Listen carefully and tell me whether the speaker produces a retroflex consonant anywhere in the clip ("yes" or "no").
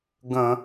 no